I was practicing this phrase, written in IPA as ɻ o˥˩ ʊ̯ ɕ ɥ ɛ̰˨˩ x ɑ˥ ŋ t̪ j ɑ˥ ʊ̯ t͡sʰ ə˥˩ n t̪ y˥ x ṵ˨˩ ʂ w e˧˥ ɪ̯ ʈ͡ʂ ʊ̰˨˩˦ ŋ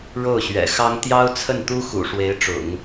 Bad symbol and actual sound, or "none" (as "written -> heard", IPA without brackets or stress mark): y˥ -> u˥